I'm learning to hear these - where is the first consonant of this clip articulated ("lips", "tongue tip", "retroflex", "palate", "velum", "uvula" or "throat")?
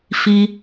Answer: lips